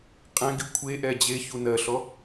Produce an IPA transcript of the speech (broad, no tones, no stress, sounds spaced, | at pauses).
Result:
qʼ ɛ̃ ɡ i kʷʰ e ʔ ɛ d͡ʑ e ç u n ɜ ɬ ɔ